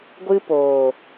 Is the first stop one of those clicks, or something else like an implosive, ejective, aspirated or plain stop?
plain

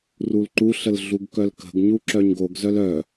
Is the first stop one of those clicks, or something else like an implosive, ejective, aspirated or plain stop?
click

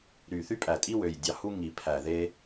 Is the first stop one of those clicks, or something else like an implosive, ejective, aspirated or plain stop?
ejective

